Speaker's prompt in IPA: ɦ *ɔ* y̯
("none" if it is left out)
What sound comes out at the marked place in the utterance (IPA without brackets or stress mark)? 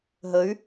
ə